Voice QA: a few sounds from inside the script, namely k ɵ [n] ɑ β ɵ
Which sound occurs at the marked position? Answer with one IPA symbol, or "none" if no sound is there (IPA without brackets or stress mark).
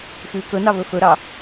n